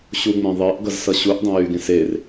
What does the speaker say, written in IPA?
ɕuŋ͡mẽðˤeʔɡʌz sʌɕuʔ dˤẽjyɡẽs er

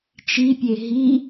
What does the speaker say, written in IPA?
t͡ʃipʲe ɦi

